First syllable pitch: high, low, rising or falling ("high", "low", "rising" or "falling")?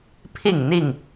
falling